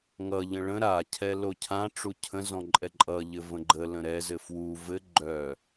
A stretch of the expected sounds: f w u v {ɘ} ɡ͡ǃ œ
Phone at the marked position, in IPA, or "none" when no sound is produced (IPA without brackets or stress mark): ɘ